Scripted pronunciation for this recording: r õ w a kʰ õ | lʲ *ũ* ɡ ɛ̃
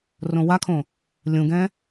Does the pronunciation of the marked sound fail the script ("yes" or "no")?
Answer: no